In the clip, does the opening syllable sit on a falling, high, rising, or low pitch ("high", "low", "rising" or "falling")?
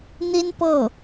high